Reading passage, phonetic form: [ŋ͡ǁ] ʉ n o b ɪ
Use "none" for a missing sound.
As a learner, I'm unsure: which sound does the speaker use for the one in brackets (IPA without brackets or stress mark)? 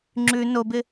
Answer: ŋ͡ǁ